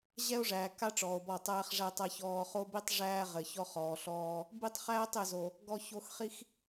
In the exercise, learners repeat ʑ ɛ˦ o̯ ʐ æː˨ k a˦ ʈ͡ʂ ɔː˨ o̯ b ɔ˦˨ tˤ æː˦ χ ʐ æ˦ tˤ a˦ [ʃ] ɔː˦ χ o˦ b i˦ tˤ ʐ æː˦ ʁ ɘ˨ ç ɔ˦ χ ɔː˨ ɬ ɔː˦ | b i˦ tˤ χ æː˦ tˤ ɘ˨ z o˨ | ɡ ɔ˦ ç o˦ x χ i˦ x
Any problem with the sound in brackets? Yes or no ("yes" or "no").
yes